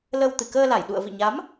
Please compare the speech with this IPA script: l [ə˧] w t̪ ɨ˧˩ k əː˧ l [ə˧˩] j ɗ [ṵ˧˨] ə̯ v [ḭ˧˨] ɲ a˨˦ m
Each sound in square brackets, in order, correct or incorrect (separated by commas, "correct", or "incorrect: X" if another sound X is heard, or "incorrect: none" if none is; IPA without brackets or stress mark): correct, incorrect: a˧˩, correct, correct